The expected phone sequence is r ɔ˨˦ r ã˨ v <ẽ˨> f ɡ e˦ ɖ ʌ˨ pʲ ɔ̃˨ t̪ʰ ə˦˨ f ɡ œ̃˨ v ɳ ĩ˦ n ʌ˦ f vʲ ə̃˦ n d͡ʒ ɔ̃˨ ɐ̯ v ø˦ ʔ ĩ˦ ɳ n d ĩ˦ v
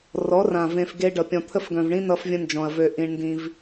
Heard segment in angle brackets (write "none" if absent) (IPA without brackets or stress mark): ẽ˨